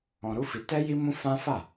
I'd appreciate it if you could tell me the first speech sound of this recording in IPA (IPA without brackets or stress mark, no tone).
ɔ̃